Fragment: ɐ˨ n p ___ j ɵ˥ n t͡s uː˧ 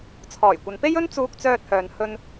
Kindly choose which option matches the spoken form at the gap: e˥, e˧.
e˥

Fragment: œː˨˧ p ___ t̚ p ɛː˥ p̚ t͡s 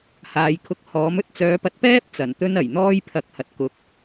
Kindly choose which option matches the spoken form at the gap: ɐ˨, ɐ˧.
ɐ˧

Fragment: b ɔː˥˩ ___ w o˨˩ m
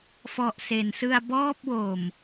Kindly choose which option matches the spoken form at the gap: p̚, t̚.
p̚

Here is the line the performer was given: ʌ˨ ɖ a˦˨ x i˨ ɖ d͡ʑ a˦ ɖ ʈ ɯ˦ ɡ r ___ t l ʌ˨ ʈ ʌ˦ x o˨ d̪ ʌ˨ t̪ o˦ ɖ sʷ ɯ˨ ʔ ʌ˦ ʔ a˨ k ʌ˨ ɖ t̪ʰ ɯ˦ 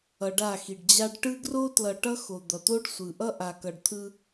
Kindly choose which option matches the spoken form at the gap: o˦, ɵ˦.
o˦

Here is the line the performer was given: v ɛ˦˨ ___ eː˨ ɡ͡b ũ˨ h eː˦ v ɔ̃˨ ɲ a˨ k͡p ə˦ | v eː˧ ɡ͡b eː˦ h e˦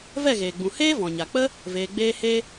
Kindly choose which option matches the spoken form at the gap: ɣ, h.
ɣ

